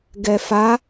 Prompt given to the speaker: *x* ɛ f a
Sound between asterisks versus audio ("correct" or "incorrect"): incorrect